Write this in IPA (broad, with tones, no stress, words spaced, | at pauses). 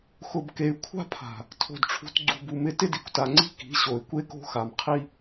xʊ˨bke˨y̯ kʷʰa̤˦pʰa̤˨ | tʰo̤˨dʈ͡ʂʰṳ˨t ɡ͡ǀṳ˨bu˨ mɪ˨ tɪ˦di˨kʷta˨ŋ͡ǀi̤˦ ki̤˨˦ɕo˨y̯kʷe˦ko̤˦ xa˨mqʰi˦